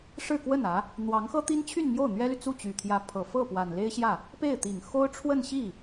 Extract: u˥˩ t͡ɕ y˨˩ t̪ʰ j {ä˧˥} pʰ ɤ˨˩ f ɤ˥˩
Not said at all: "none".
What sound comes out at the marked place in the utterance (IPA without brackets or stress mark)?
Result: ä˧˥